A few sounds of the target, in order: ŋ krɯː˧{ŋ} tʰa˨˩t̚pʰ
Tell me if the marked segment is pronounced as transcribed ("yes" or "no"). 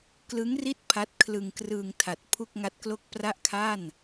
yes